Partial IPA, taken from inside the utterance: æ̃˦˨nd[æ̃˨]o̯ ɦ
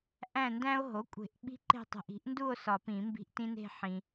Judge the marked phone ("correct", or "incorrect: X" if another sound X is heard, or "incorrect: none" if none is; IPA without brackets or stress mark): incorrect: æ̃˦